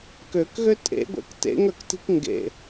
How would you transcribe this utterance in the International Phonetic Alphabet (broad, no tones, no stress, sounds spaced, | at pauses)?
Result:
k ø k ɣ ø tʼ ḛ ɡʷ ɛ̰ k t ḛ ŋ œ k t i̤ k ŋ ɡ ḛ